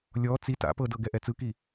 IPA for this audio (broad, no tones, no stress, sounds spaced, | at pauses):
lʲ ɔ t͡s i t a̰ p ɤ d ɤ ɡ ɛ ʔ ɛ t͡s ɯ k i